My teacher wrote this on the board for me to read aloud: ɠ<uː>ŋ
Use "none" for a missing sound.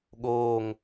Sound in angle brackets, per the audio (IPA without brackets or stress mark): oː